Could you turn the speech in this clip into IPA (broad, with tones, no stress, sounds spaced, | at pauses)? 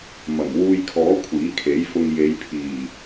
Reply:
m ɐ˨˩ m w uː˧ j kʰ ɔː˨˥ kʷʰ iː˨˥ kʰ e˨˥ j f ʊ˧ ŋ j e˨˧ j pʰ iː˨˩